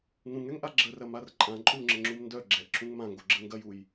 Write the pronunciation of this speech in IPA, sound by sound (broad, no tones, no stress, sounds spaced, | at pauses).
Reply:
ŋ ũ ŋ ɛ ŋ ʔ a ɡ͡ǁ ə r ɐ m a r ǃʼ ã ǃʼ u ŋ͡ǁ ə ŋ͡ǁ u m n d œ ɡ͡ǁ ɛ ʔ ǁʰ ũ ŋ m ã ŋ ɡ o ɡ͡ǁ ə ŋ ɡ ɐ j u j